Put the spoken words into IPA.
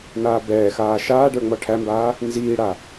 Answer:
naːbɛːxaː ʃaːɖə˞ ŋ͡mɔʈʰæmbaː | nziːɽa

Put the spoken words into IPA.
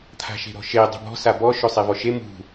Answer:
t̪ʰa̤ʃe̤ɾɔ̤ʃe dˤṳbɔ̤ sabɔ ʃɵsˤevɔʃe mṳ

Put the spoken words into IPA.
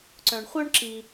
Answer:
ǀœ̃˧ɳχʷœ˥ɳ ǁi˧

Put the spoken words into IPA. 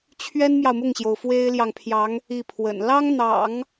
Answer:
t͡ɕʰɥɛ˥nmjɑ˨ʊ̯mʊ˥˩ŋɕjo˩ʊ̯ fwe˥ɪ̯ljɑ˨ŋpʰjɑ˧˥ŋ | i˥˩pʰwə̰˨˩n lɑ˥ŋn̪ɑ̰˨˩˦ŋ

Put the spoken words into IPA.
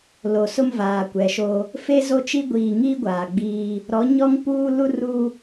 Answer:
lo˨sʊ˦m vaː˨kʷɛ˨ʃo˦ | fe˦zo˦t͡ʃi˦ ɡʷiː˨ŋiː˦ ɡʷaː˨ɡ͡biː˦ | ɾɔ˨˦ɲɔ˦ŋpuː˦ lu˦ru˦

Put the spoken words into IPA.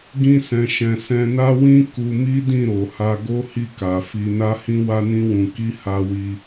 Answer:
ɡĩ˧sɛ̃˨ ʃɛ̃˨sɛ̃˧na˦ wĩ˦ ku˧mi˦dĩ˦˨ɾo˨ ha˧ ɡo˦hi˦˨ka˨ fi˧na˦hĩ˦ wa˦nĩ˦wũ˧ki˦ ha˦wi˦

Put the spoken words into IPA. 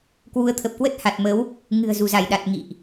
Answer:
kwu˨˦ə̯t̪ʰə˨˩p̚kwə˦˥t̚ ha˨˩t̚mə˨˦w | ŋɨ̤˨˩ə̯ zu˧˩za˧˩jɗa˨˩t̚ ŋḭ˧˨ʔ

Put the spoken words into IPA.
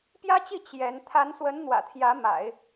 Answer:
pjä˥t͡ɕi˥˩ t͡ɕjɛ˧˥n t̪ʰa˧˥nswə˧˥n n̪wä̰˨˩t̪ʰjä˧˥ ma̰˨˩˦ɪ̯

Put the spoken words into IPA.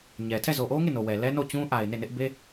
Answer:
ɲɛ˨ tʰɛ˦˨zo˨ʔo˦ŋe˦˨ no˨wɛ˨ lɛ˦no˦˨t͡ɕũ˦ ʔa˨ɪ̯ ne˦˨nɪ˦ʔ be˦

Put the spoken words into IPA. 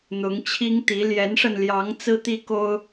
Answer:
n̪ʊ˨˦ŋt͡ɕʰi˦ŋt̪i˨˦ ljɛ˨˦nʂə˧n ljɑ˨˦ŋ t͡sɹ̩˦t̪i˦ko˦ʊ̯

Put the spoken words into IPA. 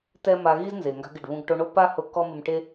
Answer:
tɛ˥ ma˧ ɣi˥z nze˩ŋɡa̤˧ɡɪ˩ɖ βũ˧ɡʈo˧ɳo˥ pa˥hʊ˧ kɔ˥mɪ˧mʈe˥

